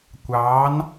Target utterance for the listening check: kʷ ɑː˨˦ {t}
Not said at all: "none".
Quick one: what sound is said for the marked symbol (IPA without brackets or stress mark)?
n